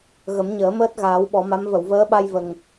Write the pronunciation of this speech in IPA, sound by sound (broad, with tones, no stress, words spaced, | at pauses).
ɣə˨˩˦mɲəː˨˩˦məː˦˥t̚ ɣaː˨˩˦wɓɔ˨˩˦ma˧˥m və˨˩˨wvəː˧˥ɓa˧j və˨˩ŋ